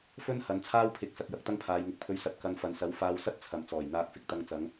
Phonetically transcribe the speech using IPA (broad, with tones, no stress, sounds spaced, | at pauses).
f ɵ˥ n h ɐ˨˧ n t͡sʰ aː˥ w pʰ ɪ˧ k̚ s ɐ˨ k̚ j ɐ˨ k̚ t̪ ɐ˥ ŋ pʰ aː˨˧ j ŋ ɪ˨ k̚ pʰ ɵ˧ ɥ s ɐ˨˥ t̚ k ɐ˨˧ n f ɐ˨ n s ɐ˨˥ w f aː˧ w s ɐ˥ t̚ t͡sʰ ɐ˨ m t͡s ɔː˨˩ j n̪ aː˧ k̚ f ɪ˧ k̚ t̪ ɐ˧ ŋ t͡s ɐ˨˧ ŋ